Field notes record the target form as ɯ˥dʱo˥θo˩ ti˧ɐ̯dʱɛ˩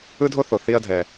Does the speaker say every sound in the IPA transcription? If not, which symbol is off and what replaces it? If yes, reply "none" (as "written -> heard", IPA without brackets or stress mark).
t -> θ